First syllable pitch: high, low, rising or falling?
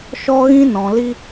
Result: high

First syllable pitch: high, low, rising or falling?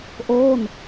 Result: falling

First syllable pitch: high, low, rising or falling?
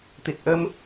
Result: low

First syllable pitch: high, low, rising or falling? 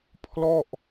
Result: falling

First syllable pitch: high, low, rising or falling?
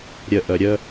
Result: low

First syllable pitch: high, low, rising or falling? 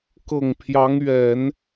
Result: low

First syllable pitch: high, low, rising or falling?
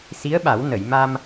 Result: rising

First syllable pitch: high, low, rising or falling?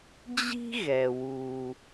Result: high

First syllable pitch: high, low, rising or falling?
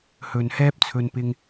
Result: low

